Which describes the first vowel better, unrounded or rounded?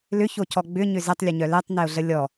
rounded